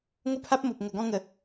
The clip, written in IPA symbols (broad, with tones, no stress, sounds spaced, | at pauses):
ŋ o˦ pʰ a˦ p̚ m o˨ p̚ ŋ ə˨˩ ɡ ɔ̃˥˧ ŋ ə˨˩